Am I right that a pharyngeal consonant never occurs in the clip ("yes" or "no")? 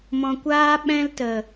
yes